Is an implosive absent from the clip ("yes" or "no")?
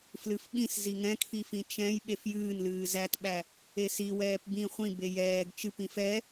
no